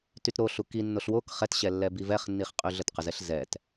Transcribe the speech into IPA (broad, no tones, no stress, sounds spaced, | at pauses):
t y t ɾ o ɬ u k i nː o ɬ w o k χ ɛ t ɕ ɛ lː ɛ b i v ɛ χ nː i χ qʼ y ɮ ə t q ə z ɛ ɬ z ɛ t